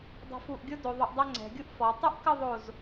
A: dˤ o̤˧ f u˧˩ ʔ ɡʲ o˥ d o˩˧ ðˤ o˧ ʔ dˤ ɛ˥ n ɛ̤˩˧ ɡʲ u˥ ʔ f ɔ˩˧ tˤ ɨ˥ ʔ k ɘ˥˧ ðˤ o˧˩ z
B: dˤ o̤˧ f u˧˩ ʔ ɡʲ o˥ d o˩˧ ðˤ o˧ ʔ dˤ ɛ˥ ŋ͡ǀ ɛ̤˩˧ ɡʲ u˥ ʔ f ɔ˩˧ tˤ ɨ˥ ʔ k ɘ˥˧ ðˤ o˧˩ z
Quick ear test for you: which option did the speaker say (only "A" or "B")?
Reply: B